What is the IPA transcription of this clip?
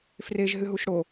freʒ ɦɨɦuʃɽo

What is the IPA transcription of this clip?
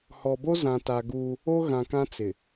hɔ˨bo˦ zã˨ta˨ ɡuː˦ | o˦ɣã˨kã˦ t͡sɪ˨

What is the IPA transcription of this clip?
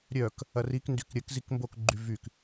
ɾʲœk | ɐrikndyk ɾʲəkzik mbokɡ͡ǃy vyk

